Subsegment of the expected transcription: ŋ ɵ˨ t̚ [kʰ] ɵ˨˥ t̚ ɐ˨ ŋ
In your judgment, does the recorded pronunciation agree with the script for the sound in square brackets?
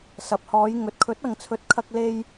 yes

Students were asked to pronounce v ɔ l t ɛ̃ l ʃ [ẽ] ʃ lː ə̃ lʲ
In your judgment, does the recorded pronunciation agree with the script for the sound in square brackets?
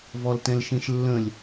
yes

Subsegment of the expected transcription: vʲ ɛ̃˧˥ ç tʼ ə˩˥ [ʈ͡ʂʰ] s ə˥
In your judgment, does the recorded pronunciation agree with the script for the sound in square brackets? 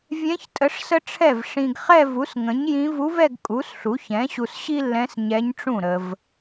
no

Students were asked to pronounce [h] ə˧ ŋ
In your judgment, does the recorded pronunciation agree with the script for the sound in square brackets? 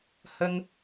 yes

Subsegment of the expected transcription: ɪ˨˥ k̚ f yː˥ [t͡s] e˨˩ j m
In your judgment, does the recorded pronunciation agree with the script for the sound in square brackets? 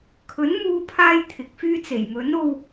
yes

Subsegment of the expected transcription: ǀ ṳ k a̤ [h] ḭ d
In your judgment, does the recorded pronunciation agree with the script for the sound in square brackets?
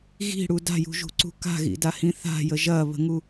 no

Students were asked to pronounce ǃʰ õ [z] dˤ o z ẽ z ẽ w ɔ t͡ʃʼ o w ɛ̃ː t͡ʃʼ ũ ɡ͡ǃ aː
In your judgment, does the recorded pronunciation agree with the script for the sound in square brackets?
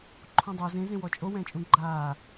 no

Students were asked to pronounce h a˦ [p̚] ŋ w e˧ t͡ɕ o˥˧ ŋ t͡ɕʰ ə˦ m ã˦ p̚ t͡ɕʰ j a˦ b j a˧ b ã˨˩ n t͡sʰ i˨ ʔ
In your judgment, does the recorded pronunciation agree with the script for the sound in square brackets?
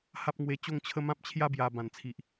yes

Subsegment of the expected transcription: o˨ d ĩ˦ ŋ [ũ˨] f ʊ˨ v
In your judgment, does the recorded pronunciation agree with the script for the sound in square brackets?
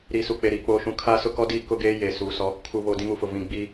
no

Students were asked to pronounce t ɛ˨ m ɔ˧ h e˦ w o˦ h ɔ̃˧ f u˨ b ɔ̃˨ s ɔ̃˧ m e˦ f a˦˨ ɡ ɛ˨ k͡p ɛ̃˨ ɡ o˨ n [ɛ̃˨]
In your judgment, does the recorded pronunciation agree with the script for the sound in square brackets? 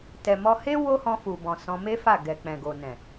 yes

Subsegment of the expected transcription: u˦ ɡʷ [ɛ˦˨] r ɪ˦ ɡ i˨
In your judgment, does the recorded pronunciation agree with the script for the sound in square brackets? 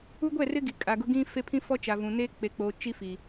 yes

